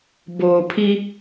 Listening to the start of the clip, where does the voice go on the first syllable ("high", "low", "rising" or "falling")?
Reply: low